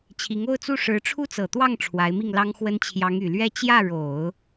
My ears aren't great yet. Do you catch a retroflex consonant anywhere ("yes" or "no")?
yes